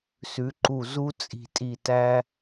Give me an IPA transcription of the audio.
s ʉ˩˥ ǃ u˧˩ z u˦ t͡sʼ i̤˧˩ tʼ i˧˩ t æ˦

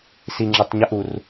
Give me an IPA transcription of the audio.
s i ŋ͡ǁ ə tˤ ɲ ə ʔ u r

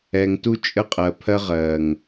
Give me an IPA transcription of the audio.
ɛ˨ ŋ t u˦ t͡ʃʼ ə˦ qʼ ɜ˨ pʰ ɜ˦ ʁ ɜ˨ ŋ

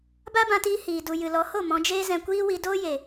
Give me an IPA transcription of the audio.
b a˦ b ã˧ t iː˧ h iː˨ d u˨ j ɨ˨ l ɔ˨˦ h o˦˨ m ɔ̃˧ d͡ʒ eː˦ z ɛ̃˧ kʷ iː˦ w i˧ d oː˦ j e˨

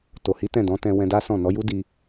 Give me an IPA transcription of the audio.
t o˨ h i˨˦ t ɛ̃˦˨ d ɔ̃˨˦ t ɛ̃˧ w ɛ̃˧ d a˦ s ɔ̃˦˨ n ɔ˨˦ j u˦ d i˧

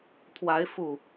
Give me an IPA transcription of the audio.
t̪ʰ w a˨˦ ɪ̯ f u˨˩

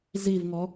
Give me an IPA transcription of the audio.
z i v ŋ ɔ

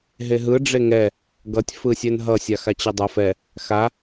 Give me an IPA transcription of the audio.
ɦ e ɦ ɯ ɖ͡ʐ e ŋ ɛ | ɡ ʌ tʲ f ɯ sʲ ɛ n ɦ ʌ sʲ a x a t͡ɕ ʌ dˤ ʌ f ɛ | x a

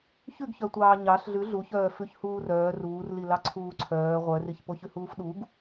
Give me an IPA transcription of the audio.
ç ʉ ɡ ç œ tʷ ɑː ɲ ɑ ɬ ɮ ʉ ɮ u ç œː f ʉ ç h uː r œː r uː r l i l ɑ ǀʰ uː ǀʰ œː ʁʷ œ r i ç p o ç ʉ h uː f ɗ u ɡ

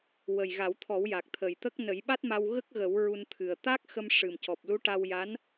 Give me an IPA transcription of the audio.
w ə˨˩ j ɣ a˨˩˦ w t̪ʰ ɔ˨˩˦ w j a˨˩ k̚ t̪ʰ ə˨˩ j t̪ ə˦˥ k̚ n ə˨˩˦ j ɓ a˦˥ t̚ m a˧ w ɣ ə˦˥ k̚ ɣ ə˨˩˦ w ɹ u˧ n t̪ʰ ɨ˨˩ ə̯ t̪ a˦˥ k̚ x ə˧ m ʂ ɨ˨˩ m c ɔ˨˩ p̚ l u˧˥ ʈ a˧ w j a˧˥ n

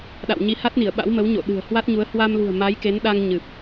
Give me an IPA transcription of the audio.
ɗ a̰˧˨ w ɲ i˨˦ h a˦˥ t̚ n i˧˩ ə̯ ɓ a̰˧˥ w m ə˨˦ w ɲ o̰˧˨ ɗ ɨ̤˨˩ ə̯ h w a˦˥ t̚ ɲ u˨˦ ə̯ h w a˧ m l ṳ˨˩ ə̯ m a˨˦ j k e˨˦ n ɗ a˧ ŋ ɲ ɨ˨˩ p̚

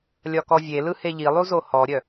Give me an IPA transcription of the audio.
lʲ ɒ k ɔ vʲ e l ɯ h e ʎ i lˠ u z o h ɔ ɾʲ œ

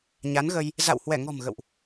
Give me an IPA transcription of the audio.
ɲ a˨˦ n ɣ ə˧ j | z a̰˧˨ w h w ɛ˧˩ ŋ ɔ̤˨˩ m ɣ ə̰˧˨ w ʔ

